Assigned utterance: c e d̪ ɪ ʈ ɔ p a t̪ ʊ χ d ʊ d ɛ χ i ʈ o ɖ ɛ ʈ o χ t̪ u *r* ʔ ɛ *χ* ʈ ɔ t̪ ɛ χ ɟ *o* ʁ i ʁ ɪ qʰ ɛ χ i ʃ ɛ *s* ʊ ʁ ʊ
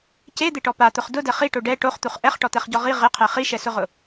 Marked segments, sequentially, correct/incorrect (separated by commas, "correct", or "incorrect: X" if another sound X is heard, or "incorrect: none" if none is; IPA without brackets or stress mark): incorrect: χ, correct, incorrect: ɔ, correct